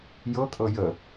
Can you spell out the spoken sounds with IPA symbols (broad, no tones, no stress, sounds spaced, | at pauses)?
j ɤ kʼ ɤ j ə